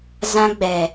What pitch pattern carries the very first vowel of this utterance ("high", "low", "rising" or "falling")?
high